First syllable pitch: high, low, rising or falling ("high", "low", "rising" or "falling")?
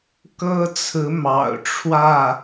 high